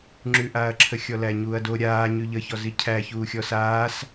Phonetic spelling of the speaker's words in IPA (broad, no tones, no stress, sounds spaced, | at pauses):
ŋ͡ǁ ʉ ʔ aː ɐ̯ ǁʰ ə xʲ ɔ l æ ɲ uː ɐ̯ d o ɾʲ aː ɲ ʉ ʎ ə ç ɔ z i cʰ æ ç uː xʲ ɔ s aː s